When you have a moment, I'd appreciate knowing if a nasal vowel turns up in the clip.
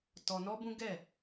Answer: yes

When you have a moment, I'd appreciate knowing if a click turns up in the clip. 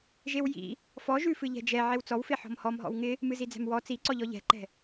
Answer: yes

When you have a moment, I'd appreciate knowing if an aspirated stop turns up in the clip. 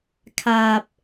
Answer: yes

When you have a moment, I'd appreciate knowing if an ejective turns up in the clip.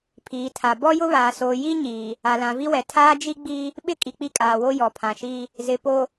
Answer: yes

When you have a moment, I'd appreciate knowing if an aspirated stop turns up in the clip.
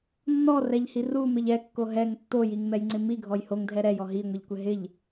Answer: no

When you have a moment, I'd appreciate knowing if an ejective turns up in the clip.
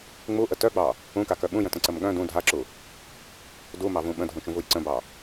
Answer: no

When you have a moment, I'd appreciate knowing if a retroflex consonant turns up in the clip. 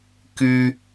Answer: no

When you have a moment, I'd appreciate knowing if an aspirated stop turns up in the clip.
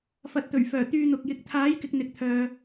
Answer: yes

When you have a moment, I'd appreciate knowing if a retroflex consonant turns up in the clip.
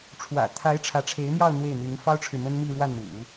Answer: yes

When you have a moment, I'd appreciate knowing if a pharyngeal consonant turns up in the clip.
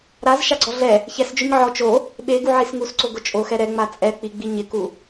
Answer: yes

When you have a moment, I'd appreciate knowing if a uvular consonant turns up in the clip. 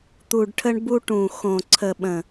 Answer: no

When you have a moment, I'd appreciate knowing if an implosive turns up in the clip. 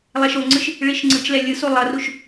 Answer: no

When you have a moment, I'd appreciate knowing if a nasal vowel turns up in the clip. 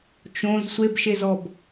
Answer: yes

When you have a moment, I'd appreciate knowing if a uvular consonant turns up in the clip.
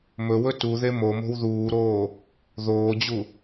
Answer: no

